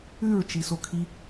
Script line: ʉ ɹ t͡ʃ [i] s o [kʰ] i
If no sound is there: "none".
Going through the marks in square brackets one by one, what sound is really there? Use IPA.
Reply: i, kʰ

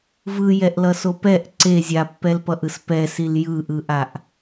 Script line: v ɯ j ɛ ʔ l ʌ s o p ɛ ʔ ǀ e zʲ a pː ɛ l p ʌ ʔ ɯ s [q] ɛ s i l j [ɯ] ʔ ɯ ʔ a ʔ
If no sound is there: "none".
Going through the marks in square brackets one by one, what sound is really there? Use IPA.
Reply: p, ɯ

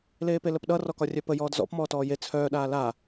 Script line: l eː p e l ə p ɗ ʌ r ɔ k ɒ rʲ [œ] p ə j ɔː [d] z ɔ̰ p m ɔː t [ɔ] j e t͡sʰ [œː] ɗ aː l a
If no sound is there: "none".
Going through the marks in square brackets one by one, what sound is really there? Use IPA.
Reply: œ, d, ɔː, œː

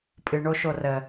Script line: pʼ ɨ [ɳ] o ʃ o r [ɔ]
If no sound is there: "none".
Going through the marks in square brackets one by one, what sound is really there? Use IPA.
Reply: ɳ, ə

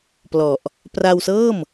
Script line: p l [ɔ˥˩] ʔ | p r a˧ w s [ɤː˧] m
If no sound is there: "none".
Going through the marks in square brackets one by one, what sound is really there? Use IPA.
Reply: ɔ˨˩, ɤː˥˩

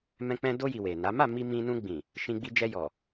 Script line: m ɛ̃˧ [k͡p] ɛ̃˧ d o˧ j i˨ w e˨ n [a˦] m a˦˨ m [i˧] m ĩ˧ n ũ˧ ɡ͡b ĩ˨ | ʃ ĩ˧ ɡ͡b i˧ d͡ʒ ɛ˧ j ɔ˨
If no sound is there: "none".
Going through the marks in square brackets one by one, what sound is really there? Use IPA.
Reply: k͡p, a˨˦, i˧

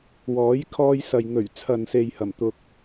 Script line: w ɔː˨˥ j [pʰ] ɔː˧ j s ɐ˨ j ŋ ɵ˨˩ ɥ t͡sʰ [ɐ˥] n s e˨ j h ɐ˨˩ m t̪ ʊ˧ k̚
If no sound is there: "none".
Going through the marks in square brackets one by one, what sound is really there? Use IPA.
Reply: kʰ, ɐ˨

